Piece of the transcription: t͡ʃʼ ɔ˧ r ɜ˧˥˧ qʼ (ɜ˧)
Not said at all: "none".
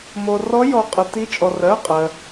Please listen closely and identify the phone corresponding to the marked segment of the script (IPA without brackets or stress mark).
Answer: ɜ˧